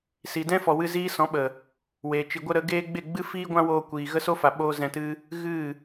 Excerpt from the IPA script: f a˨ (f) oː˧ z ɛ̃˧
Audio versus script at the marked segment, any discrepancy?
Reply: yes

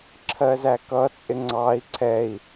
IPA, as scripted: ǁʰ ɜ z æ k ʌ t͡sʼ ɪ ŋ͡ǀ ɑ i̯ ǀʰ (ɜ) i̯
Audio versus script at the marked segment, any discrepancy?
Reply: yes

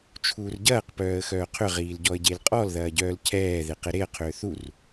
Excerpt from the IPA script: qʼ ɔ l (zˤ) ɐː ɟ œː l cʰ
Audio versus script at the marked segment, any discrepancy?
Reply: yes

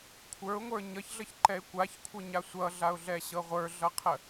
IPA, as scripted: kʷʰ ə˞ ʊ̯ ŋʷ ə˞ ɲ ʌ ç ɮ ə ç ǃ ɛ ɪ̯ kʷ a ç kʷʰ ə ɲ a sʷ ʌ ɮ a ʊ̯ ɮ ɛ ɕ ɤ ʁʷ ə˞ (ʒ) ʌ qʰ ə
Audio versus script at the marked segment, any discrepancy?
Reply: yes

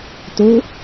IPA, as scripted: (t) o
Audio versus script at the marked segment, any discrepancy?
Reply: no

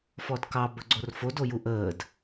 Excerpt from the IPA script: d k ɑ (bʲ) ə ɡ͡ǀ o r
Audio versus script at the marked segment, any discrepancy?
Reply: yes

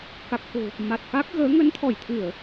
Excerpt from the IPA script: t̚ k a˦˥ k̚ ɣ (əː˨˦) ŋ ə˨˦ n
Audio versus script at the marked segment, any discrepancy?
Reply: no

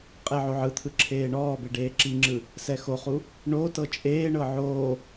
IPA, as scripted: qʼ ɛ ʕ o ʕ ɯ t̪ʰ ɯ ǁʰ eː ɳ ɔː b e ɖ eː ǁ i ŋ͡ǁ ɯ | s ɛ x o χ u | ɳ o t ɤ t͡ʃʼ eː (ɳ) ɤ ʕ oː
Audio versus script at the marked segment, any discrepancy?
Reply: no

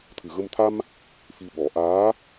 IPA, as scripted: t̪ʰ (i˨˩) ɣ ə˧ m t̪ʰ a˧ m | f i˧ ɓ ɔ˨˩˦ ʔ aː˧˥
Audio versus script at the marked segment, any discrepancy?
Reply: yes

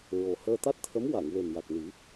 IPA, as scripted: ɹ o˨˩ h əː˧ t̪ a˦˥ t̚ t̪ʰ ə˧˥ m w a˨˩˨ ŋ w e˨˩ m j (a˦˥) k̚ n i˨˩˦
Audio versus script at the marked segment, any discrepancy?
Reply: yes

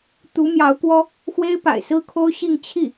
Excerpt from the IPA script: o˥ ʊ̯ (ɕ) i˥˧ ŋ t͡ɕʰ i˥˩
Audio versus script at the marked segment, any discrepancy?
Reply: no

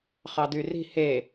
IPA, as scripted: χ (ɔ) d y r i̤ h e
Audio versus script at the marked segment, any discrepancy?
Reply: yes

